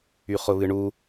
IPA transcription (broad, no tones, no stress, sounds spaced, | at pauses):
y χ ʊ β ɨ ɳ u